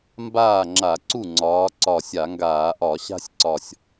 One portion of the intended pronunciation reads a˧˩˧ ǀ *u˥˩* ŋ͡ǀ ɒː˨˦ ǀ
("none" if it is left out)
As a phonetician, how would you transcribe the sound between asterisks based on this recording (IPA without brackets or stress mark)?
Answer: u˥˩